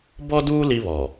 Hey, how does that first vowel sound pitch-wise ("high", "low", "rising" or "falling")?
high